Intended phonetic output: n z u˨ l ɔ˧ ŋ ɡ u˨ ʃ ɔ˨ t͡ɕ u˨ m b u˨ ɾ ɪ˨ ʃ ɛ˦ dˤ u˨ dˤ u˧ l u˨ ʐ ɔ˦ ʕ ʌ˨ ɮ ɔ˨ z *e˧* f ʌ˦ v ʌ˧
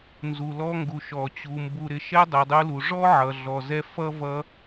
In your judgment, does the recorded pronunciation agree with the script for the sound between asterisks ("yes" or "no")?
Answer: no